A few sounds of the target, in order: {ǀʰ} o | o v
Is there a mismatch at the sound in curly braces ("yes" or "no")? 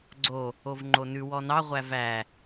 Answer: yes